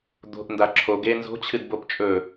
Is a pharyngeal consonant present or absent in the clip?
absent